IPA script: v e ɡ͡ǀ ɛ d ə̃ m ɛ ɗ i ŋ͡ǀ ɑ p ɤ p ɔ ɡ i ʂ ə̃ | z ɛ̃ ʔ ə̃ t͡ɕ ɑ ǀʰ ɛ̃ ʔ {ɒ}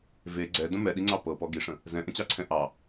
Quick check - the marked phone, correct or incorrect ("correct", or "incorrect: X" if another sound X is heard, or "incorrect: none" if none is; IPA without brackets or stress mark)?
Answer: incorrect: ɑ